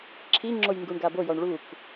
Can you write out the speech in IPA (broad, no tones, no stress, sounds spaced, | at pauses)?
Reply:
ǁʰ i ŋ͡ǁ o j ŋ ɡ u ɳ ɡ a b o j ɔ ɳ ɭ u k